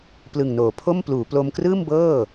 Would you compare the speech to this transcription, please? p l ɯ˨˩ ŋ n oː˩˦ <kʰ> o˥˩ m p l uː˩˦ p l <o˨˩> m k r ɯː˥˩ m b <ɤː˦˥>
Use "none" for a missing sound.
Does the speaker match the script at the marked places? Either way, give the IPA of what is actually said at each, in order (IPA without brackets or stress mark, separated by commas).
pʰ, o˧, ɤː˥˩